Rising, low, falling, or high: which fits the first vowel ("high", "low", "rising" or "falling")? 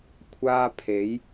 high